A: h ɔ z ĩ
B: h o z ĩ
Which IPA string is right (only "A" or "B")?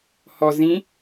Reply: A